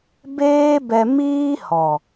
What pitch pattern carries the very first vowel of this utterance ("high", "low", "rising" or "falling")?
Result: high